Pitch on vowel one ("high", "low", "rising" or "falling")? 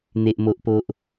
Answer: high